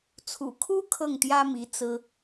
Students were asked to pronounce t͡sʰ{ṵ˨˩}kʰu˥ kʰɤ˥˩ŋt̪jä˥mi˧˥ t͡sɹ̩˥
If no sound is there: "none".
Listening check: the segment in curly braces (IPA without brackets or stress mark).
ṵ˨˩